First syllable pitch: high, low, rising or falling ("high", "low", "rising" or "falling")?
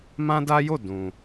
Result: high